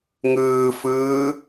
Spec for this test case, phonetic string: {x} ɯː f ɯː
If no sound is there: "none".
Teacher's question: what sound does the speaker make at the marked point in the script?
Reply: ŋ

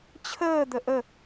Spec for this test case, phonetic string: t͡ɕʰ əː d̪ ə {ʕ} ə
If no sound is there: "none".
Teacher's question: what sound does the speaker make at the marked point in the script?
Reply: ʔ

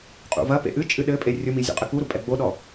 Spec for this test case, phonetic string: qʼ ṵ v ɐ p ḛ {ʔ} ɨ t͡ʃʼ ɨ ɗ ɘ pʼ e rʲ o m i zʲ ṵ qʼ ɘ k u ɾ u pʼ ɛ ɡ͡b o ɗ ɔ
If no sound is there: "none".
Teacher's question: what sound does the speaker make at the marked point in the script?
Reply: ʔ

